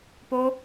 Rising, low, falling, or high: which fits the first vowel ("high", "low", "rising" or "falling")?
high